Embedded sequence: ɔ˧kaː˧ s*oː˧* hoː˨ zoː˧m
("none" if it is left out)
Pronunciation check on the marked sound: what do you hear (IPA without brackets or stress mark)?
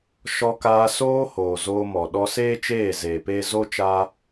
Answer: oː˧